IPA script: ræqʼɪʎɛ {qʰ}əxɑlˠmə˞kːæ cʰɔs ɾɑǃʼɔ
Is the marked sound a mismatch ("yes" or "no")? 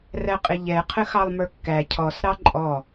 no